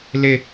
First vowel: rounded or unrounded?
unrounded